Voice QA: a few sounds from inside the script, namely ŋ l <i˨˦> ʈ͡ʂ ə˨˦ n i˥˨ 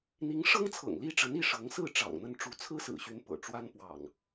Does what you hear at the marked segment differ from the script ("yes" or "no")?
yes